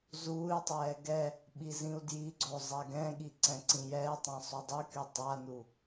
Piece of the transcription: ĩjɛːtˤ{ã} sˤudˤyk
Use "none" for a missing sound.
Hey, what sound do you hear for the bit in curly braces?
ã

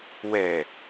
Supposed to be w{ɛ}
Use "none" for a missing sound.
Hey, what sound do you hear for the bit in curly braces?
ɛ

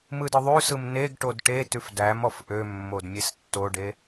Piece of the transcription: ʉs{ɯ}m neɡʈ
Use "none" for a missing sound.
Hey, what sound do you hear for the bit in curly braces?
ɯ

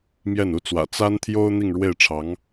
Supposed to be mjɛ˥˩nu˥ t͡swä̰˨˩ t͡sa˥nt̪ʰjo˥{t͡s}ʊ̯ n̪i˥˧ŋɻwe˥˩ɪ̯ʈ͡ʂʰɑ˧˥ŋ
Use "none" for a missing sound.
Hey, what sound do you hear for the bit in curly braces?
none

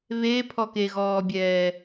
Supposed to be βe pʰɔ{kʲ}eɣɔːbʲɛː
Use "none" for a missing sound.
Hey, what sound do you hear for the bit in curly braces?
k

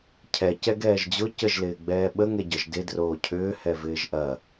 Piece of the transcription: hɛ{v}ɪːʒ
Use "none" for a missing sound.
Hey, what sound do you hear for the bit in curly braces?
v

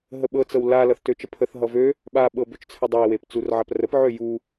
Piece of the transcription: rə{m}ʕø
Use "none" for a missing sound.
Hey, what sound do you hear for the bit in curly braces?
p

